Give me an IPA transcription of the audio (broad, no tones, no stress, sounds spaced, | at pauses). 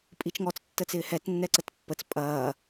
pʼ i t͡ʃ ŋ ɔ t͡s tː ə t͡s ɪː h ɛ t nː ɛ ǀ ə t pː ə t͡s pʼ ɐː